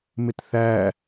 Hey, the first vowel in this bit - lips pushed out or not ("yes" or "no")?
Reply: no